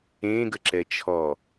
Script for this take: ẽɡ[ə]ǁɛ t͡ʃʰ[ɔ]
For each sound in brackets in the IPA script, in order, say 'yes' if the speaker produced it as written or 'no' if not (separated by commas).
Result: yes, yes